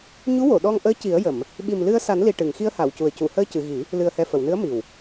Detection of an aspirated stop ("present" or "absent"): absent